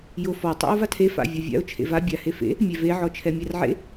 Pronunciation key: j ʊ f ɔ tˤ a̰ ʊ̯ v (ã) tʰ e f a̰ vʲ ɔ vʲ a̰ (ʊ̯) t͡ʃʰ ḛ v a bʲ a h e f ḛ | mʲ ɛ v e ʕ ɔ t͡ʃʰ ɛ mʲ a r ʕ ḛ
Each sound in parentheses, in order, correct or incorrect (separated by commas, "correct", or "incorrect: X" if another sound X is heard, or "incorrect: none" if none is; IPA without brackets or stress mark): incorrect: a, correct